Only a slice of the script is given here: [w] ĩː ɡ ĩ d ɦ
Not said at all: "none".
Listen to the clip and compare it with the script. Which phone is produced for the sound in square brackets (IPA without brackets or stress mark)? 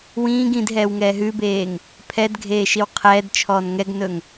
w